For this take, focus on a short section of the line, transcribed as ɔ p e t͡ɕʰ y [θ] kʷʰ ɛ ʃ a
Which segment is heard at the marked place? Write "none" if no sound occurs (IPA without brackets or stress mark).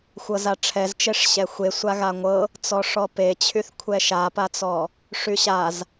θ